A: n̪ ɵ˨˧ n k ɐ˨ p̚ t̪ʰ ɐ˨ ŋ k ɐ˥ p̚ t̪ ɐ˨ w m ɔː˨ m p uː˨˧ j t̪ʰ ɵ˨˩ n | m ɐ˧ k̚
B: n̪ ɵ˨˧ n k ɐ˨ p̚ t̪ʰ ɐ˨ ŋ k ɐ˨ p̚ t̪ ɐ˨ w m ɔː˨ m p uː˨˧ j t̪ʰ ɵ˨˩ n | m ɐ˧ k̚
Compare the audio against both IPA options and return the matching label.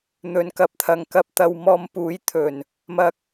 B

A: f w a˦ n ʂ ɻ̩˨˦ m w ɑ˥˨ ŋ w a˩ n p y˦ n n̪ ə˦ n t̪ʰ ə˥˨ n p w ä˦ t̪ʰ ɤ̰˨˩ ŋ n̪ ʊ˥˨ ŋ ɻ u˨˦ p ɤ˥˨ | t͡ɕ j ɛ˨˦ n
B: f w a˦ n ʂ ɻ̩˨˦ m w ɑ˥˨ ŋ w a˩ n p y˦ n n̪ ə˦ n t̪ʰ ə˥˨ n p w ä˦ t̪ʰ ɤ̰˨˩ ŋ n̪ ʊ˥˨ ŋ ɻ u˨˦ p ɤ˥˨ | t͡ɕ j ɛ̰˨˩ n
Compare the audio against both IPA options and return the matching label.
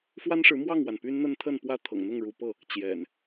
B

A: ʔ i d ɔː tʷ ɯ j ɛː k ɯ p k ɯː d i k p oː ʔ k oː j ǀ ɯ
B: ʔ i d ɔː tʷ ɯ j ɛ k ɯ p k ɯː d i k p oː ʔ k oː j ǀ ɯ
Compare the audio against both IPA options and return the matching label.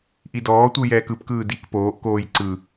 A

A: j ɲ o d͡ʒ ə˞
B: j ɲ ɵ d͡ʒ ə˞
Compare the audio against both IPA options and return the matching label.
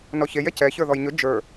B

